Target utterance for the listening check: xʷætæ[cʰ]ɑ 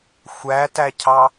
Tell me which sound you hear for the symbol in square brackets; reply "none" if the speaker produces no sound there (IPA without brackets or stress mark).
cʰ